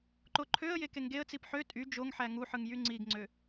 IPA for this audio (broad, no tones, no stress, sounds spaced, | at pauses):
ǃ o ǃʰ ø ə̯ j e k e ŋ ɡ e ə̯ t͡s i p ħ ø tʼ y d͡ʒ o ŋ ħ æ ŋ u ħ ɯ ŋ j y ŋ͡ǀ i ɡ ŋ͡ǀ ø